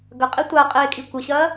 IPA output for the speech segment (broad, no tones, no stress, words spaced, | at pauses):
ɡɐqʼi tʷaqʼeːkʼi kʷəɕɐː